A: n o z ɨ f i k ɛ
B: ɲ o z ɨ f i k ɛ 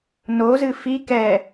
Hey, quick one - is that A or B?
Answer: A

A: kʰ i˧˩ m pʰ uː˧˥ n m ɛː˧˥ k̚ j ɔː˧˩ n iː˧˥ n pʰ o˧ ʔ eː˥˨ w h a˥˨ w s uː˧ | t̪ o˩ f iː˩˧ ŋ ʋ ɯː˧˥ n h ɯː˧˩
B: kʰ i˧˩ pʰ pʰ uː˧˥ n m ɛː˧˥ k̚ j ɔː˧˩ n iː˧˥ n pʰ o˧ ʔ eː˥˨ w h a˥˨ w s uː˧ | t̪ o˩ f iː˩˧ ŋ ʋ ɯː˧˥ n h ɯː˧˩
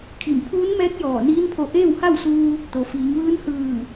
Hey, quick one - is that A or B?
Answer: A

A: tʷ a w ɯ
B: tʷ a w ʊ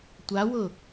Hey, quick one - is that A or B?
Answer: B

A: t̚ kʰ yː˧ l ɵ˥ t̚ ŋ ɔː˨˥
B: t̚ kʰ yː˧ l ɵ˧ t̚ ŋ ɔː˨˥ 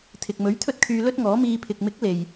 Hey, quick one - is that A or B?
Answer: A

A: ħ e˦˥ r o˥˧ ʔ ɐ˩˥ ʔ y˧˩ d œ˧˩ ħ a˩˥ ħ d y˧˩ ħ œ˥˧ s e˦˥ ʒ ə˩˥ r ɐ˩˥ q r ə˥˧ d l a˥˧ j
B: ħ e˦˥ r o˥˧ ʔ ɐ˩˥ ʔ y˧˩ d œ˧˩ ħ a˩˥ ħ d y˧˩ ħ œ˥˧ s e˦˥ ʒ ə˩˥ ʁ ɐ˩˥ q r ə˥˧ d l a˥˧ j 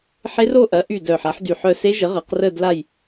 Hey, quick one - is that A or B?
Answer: B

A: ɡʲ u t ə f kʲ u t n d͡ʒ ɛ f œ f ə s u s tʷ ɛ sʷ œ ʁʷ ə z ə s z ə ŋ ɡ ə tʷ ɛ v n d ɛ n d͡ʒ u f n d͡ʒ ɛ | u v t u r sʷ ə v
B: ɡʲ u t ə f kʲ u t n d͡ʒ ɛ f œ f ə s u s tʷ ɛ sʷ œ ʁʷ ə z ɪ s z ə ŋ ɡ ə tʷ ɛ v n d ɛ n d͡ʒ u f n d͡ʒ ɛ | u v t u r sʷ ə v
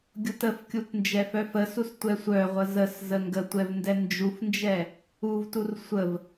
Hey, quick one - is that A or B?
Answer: A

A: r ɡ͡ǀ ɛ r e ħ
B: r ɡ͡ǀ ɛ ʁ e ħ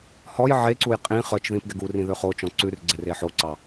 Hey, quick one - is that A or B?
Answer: A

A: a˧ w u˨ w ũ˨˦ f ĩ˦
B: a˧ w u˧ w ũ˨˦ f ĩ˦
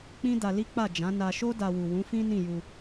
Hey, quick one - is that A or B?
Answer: A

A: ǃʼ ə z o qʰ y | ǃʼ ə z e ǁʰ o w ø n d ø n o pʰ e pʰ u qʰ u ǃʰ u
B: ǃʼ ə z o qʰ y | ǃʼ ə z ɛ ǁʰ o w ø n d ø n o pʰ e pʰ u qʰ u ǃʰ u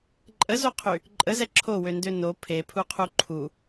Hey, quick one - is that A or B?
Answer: B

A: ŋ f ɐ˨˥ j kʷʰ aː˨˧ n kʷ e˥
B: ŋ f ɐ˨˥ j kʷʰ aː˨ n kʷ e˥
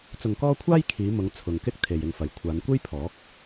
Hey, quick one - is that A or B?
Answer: A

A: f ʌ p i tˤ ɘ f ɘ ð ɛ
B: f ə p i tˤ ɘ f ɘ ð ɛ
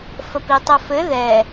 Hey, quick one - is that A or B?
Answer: B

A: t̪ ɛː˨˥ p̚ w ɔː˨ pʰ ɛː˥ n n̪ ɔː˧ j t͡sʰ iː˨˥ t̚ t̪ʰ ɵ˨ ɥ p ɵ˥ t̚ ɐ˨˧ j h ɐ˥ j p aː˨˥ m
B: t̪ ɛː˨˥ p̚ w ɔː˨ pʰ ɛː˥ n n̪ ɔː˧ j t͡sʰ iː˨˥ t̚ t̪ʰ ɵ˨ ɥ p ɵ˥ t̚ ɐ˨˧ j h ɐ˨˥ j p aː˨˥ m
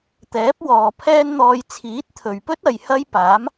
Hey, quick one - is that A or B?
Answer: A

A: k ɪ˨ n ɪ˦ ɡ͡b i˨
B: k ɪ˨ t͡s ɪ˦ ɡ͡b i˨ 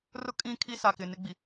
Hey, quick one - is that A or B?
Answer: A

